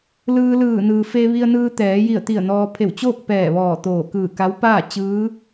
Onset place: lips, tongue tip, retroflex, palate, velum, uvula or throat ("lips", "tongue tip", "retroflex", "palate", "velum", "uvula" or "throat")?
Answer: tongue tip